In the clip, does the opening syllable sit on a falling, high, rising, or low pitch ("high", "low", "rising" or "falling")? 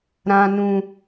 low